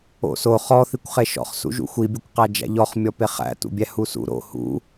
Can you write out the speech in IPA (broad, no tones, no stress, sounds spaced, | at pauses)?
o̰ s o χ ɔ θ i kʷ χ e ʃ ɔ̰ χ s ṵ ʒ ṵ xʷ i bʲ ɐ kʷ q æ d͡ʒ æ̰ ʎ ɔ χ mʲ ɔ p e χ æ̰ t ṵ bʲ æ h u s ṵ ɾ o̰ h ṵ